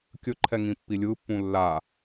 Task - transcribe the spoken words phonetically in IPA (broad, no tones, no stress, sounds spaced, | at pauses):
kʲ ɵ ǃʰ ɛ ŋ ĩ pː i lʲ ɯ pː ũ lː a